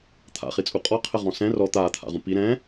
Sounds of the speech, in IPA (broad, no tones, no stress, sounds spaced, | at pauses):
t̪ʰ a̰ χ i t͡sʼ u qʼ ɔ qʰ ɘ ʁ ɔ̃ s ɛ̃ r ɔ t̪ aː t̪ʰ a̰ ʁ ũ p i ɾ ɛ̃ː